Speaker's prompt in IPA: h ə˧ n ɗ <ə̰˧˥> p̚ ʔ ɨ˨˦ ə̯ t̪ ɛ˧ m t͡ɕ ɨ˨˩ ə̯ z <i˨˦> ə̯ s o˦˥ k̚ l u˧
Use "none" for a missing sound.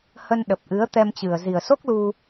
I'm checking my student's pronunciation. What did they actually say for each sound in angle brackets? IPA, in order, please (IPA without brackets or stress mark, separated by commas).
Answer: ə˨˩, i˨˩